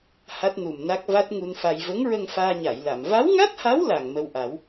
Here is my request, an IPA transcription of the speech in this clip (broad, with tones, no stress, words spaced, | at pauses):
ha˦˥t̚nu˨˩mna˦˥k̚ va˦˥t̚ŋu˧nfa˧j və˧˥ŋɹə˧ŋ faː˧ɲa˨˩˨jla˨˩˨m va˧˥wŋa˦˥t̚ha˧˥w la˨˩ŋmə˧wʔa˨˩˦w